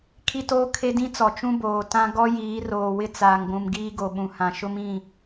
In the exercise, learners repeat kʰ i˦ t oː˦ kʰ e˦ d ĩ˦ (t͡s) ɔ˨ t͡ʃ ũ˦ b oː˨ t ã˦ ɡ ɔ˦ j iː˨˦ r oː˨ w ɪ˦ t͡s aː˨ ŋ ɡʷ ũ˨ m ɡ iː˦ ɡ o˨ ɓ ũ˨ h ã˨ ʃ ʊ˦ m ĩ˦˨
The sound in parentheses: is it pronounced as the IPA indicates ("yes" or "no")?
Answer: yes